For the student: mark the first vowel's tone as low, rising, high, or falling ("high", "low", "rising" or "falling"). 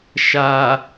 low